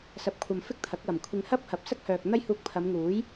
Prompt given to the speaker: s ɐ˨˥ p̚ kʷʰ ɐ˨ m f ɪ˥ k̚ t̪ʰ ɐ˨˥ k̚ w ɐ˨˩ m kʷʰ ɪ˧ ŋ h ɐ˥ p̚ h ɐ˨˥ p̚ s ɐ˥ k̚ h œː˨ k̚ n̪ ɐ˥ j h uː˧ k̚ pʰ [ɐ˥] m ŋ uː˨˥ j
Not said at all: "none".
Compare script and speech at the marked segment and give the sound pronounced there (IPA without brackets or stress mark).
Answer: ɐ˨˧